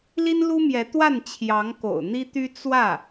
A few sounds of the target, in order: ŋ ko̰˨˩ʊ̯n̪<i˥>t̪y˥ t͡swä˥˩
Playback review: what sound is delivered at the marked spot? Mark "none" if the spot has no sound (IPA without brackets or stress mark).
i˥